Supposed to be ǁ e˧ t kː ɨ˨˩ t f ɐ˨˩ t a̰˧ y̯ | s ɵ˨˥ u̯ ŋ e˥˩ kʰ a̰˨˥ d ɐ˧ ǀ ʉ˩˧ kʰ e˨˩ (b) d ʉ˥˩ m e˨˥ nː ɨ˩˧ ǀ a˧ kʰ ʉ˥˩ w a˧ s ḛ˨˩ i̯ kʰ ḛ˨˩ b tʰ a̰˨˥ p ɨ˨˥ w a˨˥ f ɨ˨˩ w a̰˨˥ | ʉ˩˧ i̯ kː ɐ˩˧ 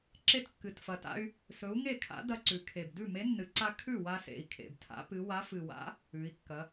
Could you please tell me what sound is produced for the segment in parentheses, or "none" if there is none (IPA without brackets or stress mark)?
b